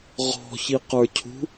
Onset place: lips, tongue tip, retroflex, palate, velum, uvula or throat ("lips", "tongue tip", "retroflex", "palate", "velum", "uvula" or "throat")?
uvula